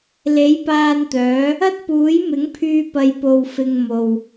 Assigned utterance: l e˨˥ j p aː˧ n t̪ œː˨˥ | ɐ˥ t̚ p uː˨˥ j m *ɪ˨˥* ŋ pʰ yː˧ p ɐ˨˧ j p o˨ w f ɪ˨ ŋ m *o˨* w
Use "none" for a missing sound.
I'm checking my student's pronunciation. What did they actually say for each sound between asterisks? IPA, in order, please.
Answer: ɪ˨˥, o˨

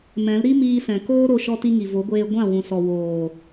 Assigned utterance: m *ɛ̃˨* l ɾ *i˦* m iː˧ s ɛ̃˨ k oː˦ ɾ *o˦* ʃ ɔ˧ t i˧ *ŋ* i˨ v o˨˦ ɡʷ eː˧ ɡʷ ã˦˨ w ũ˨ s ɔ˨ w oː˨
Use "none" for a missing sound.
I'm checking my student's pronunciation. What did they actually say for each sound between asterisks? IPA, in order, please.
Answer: ɛ̃˨˦, i˦, o˧, ŋ

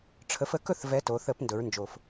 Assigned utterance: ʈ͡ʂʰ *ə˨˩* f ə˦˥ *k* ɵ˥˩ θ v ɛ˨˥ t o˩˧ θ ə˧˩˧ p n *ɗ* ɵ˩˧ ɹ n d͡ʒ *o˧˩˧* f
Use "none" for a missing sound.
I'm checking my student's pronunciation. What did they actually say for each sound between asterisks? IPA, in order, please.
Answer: ə˨˥, k, d, o˨˩

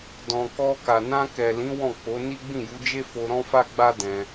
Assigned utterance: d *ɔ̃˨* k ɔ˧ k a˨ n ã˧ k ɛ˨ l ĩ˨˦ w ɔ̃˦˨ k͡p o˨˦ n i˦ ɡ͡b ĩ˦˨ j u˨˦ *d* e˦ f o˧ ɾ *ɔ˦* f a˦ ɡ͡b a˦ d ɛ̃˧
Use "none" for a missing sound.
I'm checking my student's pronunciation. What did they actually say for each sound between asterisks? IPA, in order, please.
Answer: ɔ̃˨, d͡ʒ, ɔ̃˦

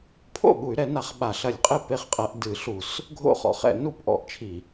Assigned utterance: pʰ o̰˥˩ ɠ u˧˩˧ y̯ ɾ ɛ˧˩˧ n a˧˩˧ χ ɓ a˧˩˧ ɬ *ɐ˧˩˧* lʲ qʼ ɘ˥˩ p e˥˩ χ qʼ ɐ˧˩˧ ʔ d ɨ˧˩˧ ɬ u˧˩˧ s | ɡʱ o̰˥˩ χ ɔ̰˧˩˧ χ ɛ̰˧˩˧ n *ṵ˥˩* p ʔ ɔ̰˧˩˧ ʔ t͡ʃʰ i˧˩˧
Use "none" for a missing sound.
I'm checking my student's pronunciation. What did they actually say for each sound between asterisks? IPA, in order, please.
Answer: ɐ˧˩˧, u˥˩

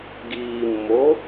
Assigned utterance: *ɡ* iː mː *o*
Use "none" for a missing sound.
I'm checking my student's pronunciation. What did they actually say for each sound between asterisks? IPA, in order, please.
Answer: ɡ, o

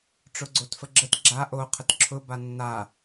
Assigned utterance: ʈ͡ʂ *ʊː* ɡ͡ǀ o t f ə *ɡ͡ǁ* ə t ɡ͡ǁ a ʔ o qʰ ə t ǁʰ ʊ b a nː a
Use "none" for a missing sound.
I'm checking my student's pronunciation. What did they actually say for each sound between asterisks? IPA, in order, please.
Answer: ʊ, ɡ͡ǁ

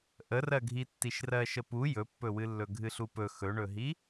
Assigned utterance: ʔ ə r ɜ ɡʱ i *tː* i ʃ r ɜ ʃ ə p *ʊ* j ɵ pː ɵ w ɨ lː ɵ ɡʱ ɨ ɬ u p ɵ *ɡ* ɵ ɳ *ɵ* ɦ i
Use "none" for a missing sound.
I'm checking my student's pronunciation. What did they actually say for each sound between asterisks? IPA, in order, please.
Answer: tː, u, x, ɵ

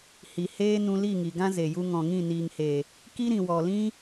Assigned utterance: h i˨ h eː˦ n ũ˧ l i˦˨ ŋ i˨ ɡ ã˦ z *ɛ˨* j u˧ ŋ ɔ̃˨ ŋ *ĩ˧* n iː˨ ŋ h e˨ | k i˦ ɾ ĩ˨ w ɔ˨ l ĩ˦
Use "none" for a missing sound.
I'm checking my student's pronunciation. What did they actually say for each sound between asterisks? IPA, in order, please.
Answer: e˨, ĩ˦˨

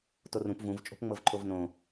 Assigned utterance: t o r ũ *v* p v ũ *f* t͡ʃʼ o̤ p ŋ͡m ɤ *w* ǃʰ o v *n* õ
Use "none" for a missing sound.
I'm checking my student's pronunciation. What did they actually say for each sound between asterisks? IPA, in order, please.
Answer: none, v, v, n

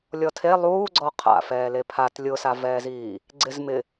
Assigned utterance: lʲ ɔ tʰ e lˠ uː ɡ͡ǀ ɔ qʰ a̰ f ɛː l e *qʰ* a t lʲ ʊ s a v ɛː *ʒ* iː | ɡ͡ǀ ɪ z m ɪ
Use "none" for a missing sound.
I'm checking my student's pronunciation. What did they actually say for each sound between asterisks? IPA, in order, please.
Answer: pʰ, z

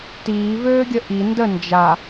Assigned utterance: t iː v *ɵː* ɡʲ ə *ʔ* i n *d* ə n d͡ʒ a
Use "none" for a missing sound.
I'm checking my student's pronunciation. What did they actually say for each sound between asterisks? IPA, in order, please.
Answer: øː, ʔ, d

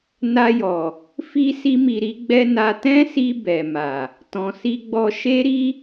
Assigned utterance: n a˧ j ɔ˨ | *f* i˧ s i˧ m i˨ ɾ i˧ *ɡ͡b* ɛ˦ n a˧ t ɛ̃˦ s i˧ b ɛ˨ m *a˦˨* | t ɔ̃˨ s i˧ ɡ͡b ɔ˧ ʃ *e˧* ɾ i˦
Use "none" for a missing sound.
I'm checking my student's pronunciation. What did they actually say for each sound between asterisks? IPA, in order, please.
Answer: f, ɡ͡b, a˨, e˦

